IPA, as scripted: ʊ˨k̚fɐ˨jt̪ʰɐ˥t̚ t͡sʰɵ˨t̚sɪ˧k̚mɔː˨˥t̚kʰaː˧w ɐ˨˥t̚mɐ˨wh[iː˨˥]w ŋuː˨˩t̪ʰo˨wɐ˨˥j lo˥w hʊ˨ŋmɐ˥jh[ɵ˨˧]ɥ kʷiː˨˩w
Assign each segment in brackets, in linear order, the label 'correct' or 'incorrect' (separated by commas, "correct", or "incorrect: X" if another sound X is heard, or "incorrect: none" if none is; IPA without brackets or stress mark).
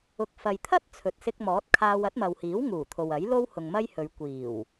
correct, correct